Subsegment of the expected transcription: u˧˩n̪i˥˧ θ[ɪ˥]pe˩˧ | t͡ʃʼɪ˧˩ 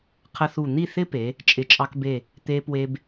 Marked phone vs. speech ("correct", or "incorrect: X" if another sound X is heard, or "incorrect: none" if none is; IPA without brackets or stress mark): correct